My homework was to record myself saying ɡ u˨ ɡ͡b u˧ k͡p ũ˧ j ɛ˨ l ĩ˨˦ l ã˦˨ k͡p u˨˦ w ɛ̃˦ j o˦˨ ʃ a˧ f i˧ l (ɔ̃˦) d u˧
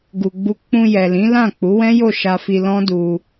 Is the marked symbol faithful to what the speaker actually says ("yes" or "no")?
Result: yes